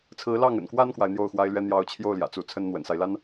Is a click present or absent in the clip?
absent